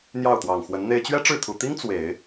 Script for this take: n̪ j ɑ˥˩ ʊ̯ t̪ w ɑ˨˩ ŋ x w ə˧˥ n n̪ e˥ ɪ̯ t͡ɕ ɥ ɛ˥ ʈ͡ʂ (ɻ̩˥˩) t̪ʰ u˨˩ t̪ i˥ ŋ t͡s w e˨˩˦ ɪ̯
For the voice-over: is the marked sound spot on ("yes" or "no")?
yes